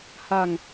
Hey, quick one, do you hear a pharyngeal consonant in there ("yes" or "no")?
no